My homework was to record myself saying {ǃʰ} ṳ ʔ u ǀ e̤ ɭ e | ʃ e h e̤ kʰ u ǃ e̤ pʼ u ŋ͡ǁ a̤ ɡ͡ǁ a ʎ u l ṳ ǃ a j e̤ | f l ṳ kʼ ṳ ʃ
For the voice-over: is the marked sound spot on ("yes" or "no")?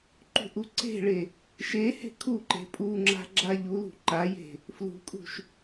no